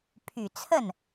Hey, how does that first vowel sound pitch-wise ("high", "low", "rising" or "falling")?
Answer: low